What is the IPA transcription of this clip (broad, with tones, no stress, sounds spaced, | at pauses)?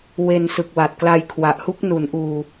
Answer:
w e˧ n s ɯ˨˩ k̚ w a˨˩ t̚ k l a˧ j kʰ w a˨˩ ʔ h u˥˩ k̚ n u˩˦ n ʔ uː˨˩